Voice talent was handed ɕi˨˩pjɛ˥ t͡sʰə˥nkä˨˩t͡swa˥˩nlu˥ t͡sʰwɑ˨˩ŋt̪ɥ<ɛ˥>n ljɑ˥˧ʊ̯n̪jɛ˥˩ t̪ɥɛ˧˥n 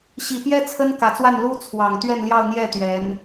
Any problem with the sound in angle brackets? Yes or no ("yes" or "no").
yes